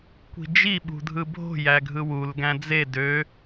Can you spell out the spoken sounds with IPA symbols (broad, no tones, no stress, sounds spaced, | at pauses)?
kʷ i̤ d͡ʒ i ɓ ṳ dʱ ɯ bʱ o̤ j æ ɡʱ ɯ w u l ɡ æ̃ d͡z e d ø